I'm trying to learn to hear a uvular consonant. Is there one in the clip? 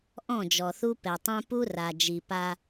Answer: no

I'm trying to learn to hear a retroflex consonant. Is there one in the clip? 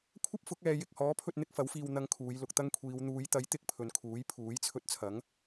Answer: no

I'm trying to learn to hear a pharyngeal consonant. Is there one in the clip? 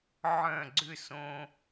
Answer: yes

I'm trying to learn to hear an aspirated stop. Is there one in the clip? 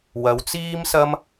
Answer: no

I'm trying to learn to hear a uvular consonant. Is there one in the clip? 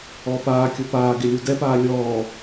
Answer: no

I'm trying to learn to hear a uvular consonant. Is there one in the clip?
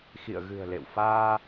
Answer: no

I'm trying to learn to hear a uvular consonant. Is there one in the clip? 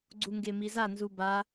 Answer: no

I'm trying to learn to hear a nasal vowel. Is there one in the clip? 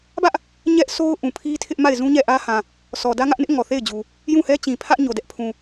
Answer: yes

